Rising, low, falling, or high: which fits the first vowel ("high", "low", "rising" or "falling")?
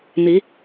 rising